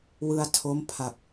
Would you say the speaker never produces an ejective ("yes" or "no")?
yes